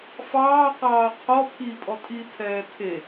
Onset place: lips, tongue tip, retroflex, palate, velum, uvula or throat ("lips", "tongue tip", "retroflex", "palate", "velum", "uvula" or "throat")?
lips